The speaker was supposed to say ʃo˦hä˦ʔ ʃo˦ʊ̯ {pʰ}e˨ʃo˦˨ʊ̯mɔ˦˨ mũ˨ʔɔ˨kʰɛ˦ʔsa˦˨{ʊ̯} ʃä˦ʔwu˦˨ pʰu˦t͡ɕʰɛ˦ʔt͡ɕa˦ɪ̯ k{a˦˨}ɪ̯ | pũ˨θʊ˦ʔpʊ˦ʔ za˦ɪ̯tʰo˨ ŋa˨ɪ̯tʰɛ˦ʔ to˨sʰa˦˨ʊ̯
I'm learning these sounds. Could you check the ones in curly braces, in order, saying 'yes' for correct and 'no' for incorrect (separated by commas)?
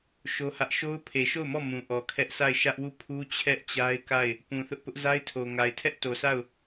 yes, no, yes